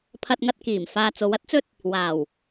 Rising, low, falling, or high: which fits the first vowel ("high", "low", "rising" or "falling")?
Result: high